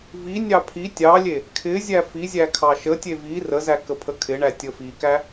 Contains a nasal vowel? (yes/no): no